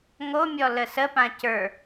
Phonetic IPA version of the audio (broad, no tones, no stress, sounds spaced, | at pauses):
ŋ o mʲ ɔ l ə s ə p ã c ə˞